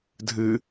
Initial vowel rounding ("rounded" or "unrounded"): unrounded